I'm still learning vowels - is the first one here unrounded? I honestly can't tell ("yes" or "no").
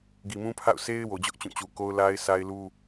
yes